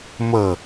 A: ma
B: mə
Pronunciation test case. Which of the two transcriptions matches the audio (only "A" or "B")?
B